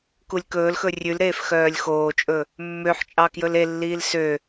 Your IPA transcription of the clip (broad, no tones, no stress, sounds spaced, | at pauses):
k u lʲ k ɵː l x ɵ rʲ ʉ l ɾ eː f x œː lʲ x oː t͡ʃʼ ɵ | mː ø ħ t͡ʃʼ ɑ k j ɵ l e lː iː l s ø